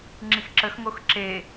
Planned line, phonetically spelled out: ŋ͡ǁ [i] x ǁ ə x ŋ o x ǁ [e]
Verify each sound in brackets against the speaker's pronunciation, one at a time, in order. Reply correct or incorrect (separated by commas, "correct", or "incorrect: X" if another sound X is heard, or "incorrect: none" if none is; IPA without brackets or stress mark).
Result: correct, correct